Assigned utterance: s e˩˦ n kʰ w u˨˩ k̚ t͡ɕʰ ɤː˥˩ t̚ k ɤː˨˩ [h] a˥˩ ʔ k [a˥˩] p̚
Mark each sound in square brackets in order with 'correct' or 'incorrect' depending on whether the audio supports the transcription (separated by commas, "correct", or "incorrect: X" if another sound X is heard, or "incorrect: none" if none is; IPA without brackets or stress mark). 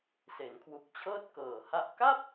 correct, correct